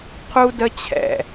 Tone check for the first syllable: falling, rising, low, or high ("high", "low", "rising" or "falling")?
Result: high